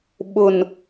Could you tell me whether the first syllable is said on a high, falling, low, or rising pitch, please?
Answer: low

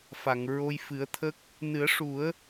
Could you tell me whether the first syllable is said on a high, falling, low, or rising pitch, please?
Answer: low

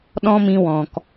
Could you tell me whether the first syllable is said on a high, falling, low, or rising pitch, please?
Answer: high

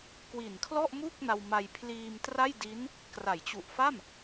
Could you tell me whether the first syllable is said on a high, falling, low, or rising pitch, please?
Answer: low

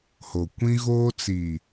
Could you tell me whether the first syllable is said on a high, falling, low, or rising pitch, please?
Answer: low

